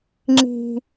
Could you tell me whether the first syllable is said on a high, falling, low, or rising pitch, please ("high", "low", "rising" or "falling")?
high